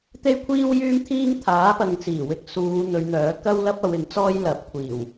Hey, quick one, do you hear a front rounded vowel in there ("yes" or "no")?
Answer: yes